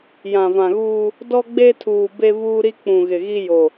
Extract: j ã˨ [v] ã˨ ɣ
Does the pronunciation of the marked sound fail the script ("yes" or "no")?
no